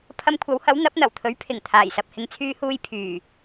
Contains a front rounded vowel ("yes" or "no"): yes